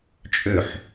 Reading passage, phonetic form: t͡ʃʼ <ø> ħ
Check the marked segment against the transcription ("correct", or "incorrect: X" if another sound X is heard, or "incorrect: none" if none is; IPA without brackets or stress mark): correct